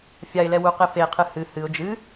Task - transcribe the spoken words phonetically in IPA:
fʲ a ɪ̯ l ɛ w u q e f e qʰ ɨ h ɨ h ɨ ʊ̯ d͡ʒ ɨ

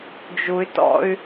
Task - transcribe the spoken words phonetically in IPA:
d͡ʒ u y̯ t ɔ̰ y̯

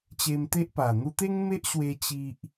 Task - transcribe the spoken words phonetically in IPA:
t͡ɕ e˧ m t̪ e˦ ʔ p a˨˩ n̪ u˧ t̪ e˦ ŋ m e˦ ʔ ɕ w e˧ t͡ɕ i˦ ʔ

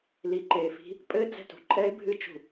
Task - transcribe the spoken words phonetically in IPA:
l i˨ ǃ eː˨ f i̤˦ | pʼ ɘː˦ d͡z ɛ̤˨ t ṳ˨ ǃʼ ɛ˦ ɪ̯ bʱ ɨ˦ t͡ʃ ṳ˨

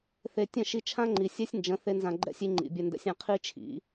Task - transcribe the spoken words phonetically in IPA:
θ e˧ tʲ ə̃˦˨ ʃ i˧ t͡ʃʰ ã˦ ŋ͡ǃ i˨ sʲ ɛ˦ sʲ n d͡ʒ ə̃˨˦ θ e˦ n z ã˧ ɡ͡ǃ ɛ̰˦ sʲ i˧ ŋ͡ǃ ḭ˨ bʲ ɛ˧ n d ɛ̰˦ sʲ ã˦ qʰ i˦ t͡ʃʰ ḭ˨˦

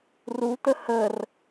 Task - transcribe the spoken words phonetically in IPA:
r u t̪ ə h ə r

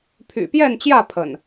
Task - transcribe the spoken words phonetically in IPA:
pʰ y̰˨˩ p j ɛ˥˨ n t͡ɕ j ä˥˨ pʰ ə̰˨˩ n

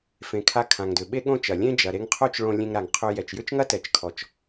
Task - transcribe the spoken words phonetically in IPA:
f ẽ˨ kʰ a˧ kʰ ã˨ ŋ d ʏ˨ ɓ e˦ ɠ õ˦ t͡ʃ ɐ˨ lʲ ẽ˦ d͡ʒ ɐ˨ ɾ e˧ ŋ qʰ o˦ t͡ʃ ɭ õ˧ lʲ ẽ˧ ŋ ɾ a˨ ŋ qʰ ʏ˧ j ɛ˨ t͡ʃ j ʏ˦ t͡ʃ ŋ ɐ˦ t ɛ˨ t͡ʃ kʰ ɔ˨ t͡ʃ

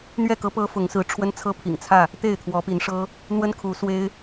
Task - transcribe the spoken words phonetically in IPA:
n̪ ɥ ɛ˥˨ k ɤ˦ p ɤ˦ f ʊ˨˦ ŋ s ɹ̩˨˦ ʈ͡ʂʰ w ə˦ n t͡sʰ ɤ˦ pʰ ḭ˨˩ ŋ t͡sʰ ä˥˨ | t̪ e˥˨ ɪ̯ t̪ʰ w ɔ˨˦ p i˨˦ n ʂ ɤ˦ | n̪ w ə˦ n kʰ u˨˦ s w e˦ ɪ̯

